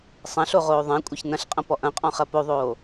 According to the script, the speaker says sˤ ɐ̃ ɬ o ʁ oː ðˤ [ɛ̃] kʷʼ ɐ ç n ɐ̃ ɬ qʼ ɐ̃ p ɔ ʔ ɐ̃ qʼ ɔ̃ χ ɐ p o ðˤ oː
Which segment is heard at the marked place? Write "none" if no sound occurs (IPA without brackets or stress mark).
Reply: ɛ̃